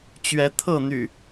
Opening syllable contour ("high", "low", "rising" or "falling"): rising